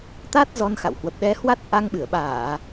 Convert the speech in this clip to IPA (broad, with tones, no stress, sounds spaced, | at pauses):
t̪ a˦˥ t̚ z ɔ˧ n x a̰˧˨ w h w ə˨˩ p̚ ɗ ɛ˨˦ h w a˦˥ t̚ ʔ a˧ ŋ ɓ ɨ˧˩ ə̯ ɓ aː˧˩˨